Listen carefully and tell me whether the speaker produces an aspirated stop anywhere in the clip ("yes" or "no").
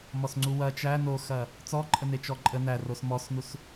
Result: no